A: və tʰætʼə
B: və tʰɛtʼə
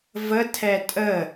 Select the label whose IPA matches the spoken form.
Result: B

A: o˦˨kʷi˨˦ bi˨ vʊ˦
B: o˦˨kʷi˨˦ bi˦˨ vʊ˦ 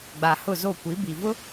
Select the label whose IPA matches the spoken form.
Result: A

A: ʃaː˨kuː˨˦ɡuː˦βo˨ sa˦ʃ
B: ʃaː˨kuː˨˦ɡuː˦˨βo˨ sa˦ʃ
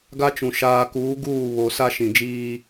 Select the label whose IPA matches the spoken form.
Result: B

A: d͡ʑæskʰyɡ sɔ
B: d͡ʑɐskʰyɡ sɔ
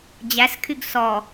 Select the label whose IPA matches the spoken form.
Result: A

